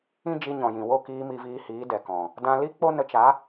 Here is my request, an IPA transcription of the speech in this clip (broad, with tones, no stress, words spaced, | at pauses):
ĩ˦ d͡ʒi˧ɲɔ̃˨jĩ˨ wo˦˨kiː˧ mi˧viː˧hiː˨˦ dɛ˨kɔ̃˨ | dã˧li˦ k͡po˦ nə˧t͡ʃa˨˦